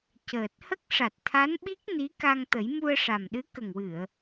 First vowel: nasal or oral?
oral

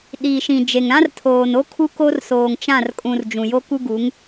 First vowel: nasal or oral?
oral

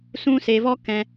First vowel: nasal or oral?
nasal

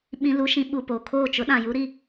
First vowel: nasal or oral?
nasal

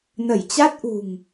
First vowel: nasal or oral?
oral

